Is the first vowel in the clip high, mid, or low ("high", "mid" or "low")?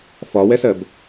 low